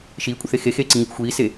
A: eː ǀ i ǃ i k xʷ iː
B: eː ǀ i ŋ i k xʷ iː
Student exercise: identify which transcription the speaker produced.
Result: B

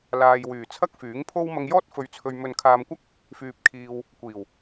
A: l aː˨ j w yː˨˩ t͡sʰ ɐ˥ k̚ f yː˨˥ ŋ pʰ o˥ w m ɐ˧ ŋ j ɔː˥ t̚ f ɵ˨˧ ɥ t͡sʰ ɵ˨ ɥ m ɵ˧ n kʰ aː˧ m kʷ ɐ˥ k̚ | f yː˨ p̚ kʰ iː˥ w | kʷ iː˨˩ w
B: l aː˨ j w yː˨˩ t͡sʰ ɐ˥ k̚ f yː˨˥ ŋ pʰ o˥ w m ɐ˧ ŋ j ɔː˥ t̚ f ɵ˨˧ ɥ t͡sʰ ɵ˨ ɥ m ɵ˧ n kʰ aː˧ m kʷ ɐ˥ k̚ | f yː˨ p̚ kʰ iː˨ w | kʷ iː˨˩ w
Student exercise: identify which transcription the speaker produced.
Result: B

